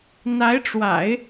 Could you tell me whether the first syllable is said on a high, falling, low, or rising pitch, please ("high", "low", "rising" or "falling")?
rising